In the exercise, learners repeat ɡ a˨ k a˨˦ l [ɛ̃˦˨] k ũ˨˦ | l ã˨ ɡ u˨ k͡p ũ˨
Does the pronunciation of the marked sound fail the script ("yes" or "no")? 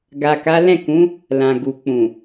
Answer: no